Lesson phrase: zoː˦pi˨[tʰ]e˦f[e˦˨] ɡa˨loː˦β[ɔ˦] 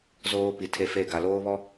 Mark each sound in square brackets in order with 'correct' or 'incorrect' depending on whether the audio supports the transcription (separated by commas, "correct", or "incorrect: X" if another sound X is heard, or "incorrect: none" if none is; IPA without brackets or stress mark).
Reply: correct, correct, correct